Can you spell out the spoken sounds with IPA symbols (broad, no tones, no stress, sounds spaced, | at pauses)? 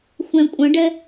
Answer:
xʷ ɛ̃ kʷʼ ə̃ ɖ ɛ